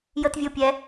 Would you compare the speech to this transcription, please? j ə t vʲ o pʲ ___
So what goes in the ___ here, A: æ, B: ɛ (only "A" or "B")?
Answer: B